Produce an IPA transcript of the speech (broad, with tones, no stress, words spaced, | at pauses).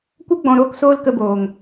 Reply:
kʷə˦ɡ͡bɔ̃˨ ɾoː˦ksoː˦lkə˧boː˨ŋ